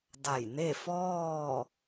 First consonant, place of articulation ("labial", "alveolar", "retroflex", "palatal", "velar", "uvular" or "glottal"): alveolar